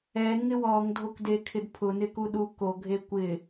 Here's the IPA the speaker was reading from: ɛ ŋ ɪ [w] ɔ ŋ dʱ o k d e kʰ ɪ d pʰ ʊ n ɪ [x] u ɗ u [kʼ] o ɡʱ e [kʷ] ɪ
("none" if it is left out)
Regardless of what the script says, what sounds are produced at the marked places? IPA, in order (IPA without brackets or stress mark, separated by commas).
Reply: w, k, k, kʷ